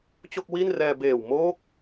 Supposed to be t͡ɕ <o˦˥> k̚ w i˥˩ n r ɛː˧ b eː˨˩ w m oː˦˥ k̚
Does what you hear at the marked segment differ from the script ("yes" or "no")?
yes